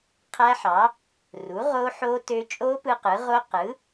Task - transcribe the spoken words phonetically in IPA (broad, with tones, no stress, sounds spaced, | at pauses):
qʰ æ˦˥ ħ ɑ˩˥ | r u˩˥ ʁ o˦˥ ħ o˦˥ t ø˦˥ t͡ʃʼ o˦˥ p ɯ˦˥ q ɯ˩˥ ʁ o˦˥ q ɯ˩˥